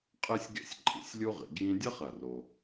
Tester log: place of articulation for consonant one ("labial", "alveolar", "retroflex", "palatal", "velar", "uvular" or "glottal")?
uvular